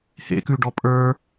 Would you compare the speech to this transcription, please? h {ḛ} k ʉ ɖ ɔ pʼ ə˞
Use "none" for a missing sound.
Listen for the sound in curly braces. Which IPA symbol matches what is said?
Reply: ḛ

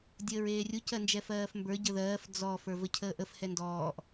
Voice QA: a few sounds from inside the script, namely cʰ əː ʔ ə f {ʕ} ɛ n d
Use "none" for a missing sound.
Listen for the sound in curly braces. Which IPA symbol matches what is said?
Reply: h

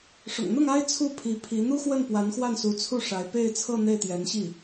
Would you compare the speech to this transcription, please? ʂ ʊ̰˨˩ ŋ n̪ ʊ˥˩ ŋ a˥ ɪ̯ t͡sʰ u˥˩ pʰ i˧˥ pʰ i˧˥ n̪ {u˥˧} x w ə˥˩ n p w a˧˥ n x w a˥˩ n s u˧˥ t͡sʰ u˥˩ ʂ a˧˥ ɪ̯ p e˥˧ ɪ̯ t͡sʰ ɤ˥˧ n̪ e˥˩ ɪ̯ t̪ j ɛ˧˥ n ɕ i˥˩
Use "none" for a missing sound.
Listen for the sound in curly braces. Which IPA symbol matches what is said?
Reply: u˥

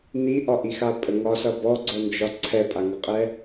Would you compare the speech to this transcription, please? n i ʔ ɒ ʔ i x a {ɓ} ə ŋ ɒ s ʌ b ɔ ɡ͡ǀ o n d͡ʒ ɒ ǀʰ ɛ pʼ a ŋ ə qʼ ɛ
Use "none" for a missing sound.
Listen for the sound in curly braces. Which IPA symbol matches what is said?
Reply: pʼ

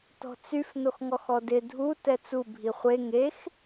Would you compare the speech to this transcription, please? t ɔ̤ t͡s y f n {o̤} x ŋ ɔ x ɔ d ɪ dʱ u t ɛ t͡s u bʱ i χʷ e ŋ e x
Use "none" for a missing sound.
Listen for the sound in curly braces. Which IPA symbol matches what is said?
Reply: o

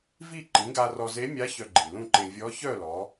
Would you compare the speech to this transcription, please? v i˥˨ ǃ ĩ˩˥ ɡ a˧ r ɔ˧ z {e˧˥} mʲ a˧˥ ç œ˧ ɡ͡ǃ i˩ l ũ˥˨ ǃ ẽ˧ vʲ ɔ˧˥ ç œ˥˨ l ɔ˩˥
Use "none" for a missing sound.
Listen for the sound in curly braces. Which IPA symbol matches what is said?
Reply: e˧˥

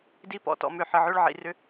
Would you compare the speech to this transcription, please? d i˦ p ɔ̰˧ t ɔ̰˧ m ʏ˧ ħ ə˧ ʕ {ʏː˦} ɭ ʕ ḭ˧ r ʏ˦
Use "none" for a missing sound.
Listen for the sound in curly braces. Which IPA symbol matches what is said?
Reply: ʏː˦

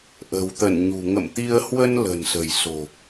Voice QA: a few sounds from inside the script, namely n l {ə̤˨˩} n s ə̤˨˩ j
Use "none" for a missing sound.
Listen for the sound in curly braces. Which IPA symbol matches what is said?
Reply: ə̤˨˩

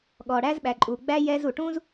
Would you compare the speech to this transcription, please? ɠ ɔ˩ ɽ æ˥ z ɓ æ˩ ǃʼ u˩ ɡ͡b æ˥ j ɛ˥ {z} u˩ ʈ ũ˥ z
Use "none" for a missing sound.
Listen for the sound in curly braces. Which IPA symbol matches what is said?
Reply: z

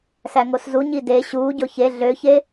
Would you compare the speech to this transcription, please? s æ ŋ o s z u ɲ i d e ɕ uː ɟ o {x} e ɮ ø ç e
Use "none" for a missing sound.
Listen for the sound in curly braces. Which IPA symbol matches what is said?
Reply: ç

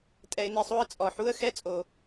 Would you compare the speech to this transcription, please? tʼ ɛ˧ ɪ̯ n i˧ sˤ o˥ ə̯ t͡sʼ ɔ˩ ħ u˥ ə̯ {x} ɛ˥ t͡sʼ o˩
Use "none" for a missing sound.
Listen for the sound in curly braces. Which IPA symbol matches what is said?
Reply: x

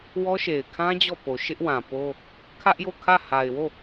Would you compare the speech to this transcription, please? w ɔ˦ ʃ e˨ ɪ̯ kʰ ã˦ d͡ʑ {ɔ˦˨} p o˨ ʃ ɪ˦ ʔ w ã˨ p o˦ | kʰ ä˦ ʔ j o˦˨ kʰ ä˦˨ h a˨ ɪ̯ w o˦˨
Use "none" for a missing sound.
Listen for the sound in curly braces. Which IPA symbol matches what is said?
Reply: ɔ˦˨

